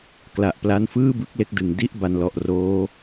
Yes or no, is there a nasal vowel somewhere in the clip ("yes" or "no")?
no